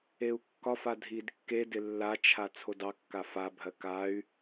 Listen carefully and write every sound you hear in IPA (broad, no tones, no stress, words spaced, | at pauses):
eu̯kːɒfa dʱidkːedɪ lːat͡ʃʰa t͡sʰodɑkːa fabʱɜ kay̯